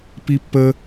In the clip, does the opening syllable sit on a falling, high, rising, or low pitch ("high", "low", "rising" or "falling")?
high